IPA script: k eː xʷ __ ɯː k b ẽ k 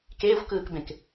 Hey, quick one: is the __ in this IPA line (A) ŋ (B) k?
B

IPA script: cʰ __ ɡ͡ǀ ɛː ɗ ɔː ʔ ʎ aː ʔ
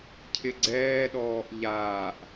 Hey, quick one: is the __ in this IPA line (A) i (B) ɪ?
B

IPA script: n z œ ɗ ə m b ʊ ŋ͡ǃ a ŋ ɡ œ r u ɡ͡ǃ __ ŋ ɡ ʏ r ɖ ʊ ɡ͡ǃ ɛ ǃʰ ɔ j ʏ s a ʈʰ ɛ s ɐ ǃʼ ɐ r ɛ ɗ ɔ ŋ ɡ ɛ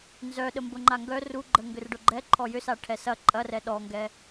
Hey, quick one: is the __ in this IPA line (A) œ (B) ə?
B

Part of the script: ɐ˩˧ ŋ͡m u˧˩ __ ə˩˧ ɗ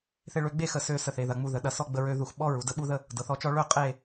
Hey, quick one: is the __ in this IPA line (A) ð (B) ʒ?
A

